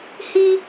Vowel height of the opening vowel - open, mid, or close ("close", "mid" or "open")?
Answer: close